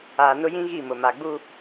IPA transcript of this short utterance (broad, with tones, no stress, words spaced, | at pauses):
aː˨ nʊ˦jĩ˦ ɣi˦˨mʊ˨ ma˨ɡ͡bu˦